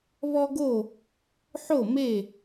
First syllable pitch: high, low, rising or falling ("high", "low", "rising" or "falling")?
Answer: high